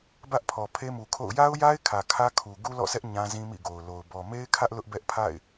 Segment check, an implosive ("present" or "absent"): absent